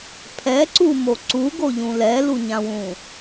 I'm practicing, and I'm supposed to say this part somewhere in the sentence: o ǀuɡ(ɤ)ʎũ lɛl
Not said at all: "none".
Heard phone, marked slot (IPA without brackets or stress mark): o